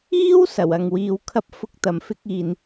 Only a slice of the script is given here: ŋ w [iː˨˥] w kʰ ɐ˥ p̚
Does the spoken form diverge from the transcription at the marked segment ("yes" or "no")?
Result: yes